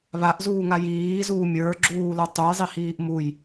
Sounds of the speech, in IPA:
βaʔzuːŋa jiːzuː mʲə˞ɡ͡ǁuːlə˞ tˤujzˤihiːʔ muj

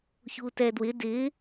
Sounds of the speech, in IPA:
çutɛdwɪ dɪ

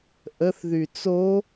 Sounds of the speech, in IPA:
ʔəθðy t͡so

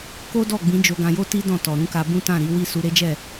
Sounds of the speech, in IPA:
ko˦ dɔ˦˨ɡ͡bĩ˨˦ d͡ʒo˧ɡã˧jo˦ti˦ dɔ̃˦˨tɔ˨ ɾũ˨˦ka˧ bũ˦tã˦˨ɾi˨˦wi˦˨ su˧ɾe˦d͡ʒɛ˦˨

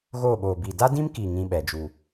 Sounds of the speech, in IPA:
ɣoː˦˨ɓoː˨bi˨ da˦dĩ˦mki˨ ŋĩ˦ ɓɛ˨d͡ʒu˨

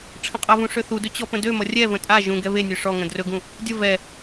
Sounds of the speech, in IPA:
ʈ͡ʂʰə̃qʼʌvũ ʂøθudɵ t͡ɕɔpə̃dømʌ rʲɛvə̃ tʼa ʒũ ɡɛβenʲø ʂɔŋə̃ drɵɡũ | dʲə vɛ

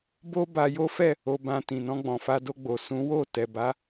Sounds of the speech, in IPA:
bo˦ ba˧jo˦fɛ˦˨ | o˧bã˧ tĩ˨nɔ̃˧ɡ͡bɔ̃˨ fa˧do˧ɡ͡bo˨ sũ˨˦wo˦˨ tɛ˨ba˨˦

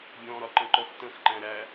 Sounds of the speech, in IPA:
bʲɔ̃ɾɒǃə̃ǃɔx tə̃xǃæ̃ ɾæ

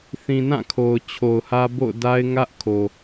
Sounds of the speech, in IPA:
θĩ˨nã˦˨ kʰo˨ʊ̯t͡ɕʰo˨ʊ̯hä˦ bo̰˦˨ʊ̯da˦ɪ̯ ŋä˦ʔkʰo˨

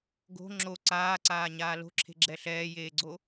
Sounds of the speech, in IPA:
ɡo̤ ŋ͡ǁo ǀaːǀaːɲaː lo̤ǁʰe̤ɡ͡ǁɛ ɬɛːjeːɡ͡ǀo

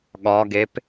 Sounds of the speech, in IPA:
ɠɒɡep

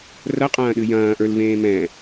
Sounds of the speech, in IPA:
rɐqʼɐ̃ːɗɨ jɐ̃ːʔə˞lvẽː mɛ̃

